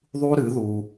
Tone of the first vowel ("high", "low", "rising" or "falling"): high